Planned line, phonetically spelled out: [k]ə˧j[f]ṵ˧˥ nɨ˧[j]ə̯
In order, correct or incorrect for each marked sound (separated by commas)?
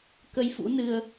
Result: correct, correct, incorrect